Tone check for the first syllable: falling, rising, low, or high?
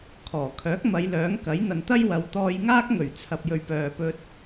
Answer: low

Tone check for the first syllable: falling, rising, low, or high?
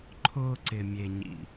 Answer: high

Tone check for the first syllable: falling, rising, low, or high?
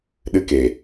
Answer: high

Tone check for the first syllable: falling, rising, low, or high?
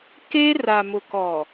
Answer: high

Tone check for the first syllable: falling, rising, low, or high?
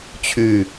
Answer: low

